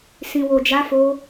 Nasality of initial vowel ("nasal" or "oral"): nasal